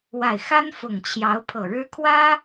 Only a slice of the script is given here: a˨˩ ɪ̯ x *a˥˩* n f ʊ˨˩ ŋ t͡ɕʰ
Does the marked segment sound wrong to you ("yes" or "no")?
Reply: yes